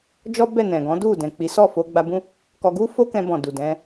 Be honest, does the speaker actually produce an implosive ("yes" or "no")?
no